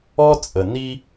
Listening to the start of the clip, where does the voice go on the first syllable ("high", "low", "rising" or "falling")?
high